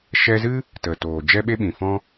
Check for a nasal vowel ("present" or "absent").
present